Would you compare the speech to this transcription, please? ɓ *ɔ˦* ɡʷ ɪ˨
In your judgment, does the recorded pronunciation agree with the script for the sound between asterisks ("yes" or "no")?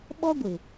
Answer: yes